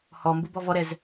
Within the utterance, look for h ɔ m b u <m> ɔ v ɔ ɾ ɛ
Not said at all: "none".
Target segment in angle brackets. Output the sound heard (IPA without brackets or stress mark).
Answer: b